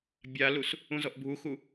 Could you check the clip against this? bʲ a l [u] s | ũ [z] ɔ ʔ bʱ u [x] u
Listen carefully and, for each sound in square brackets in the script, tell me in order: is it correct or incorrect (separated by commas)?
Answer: correct, correct, correct